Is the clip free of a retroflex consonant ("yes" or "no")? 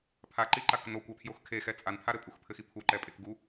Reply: yes